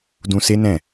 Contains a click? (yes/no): no